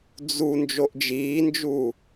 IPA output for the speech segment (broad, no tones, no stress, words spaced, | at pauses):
d͡zu nd͡ʒoʔd͡ʒiːnd͡ʒu